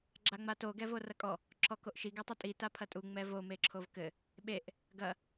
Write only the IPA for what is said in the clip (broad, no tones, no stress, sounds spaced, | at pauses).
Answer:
ɡ͡ǁ a ŋ͡m a t o ɡ ɛ v o r ɐ kʼ ɔ | ǁʰ ɔ k o ʔ ʃ i ɡ ɛ tˤ ɐ tʼ i t a pʰ ɐ tʼ u ŋ͡m ɛ v o m e ǁʰ o v k ɘ | ɓ e ʔ | ɡ ɐ